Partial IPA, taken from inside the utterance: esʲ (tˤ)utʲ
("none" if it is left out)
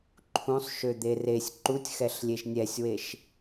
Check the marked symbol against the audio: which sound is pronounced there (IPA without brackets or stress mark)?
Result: ǃ